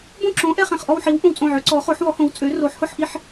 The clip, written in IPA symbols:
bõ˥˧ǁõ˨˥ ʔɛ˥˧χɛ̃˧˩χʔɔ˥˧wħi˨˥w ʔõ˧˩wt͡sʼõ˧˩ ʕø˨˥ǀɔ˨˥χo˨˥ħ wɔ˨˥hõ˨˥wt͡sʼø˨˥ ro˨˥ħhʊ˥˧ħʔi˥˧ħ

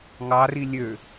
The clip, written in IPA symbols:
ŋɑri lʲø

